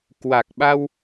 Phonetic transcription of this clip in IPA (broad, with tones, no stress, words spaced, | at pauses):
kwa˨˩k̚ɓa˧w